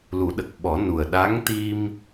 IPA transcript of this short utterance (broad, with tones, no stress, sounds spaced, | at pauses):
l u˨˩˦ ɗ ə˨˩ k̚ ɓ ɔ˨˩˦ n u˨˩ ə̯ ɗ a˧˥ ŋ t̪ i˧ m